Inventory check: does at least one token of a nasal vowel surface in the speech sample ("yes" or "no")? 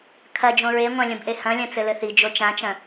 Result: yes